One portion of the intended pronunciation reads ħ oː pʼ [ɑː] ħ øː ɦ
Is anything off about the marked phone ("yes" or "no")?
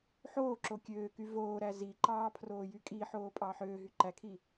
no